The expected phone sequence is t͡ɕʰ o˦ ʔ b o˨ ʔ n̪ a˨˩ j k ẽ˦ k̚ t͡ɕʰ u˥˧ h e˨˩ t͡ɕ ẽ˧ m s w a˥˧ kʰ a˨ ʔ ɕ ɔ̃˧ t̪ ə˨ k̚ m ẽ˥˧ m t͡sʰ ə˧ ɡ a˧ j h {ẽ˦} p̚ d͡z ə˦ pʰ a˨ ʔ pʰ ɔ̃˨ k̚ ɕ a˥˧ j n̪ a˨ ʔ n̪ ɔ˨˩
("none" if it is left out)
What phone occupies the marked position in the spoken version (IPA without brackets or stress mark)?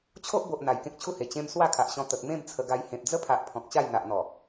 ẽ˨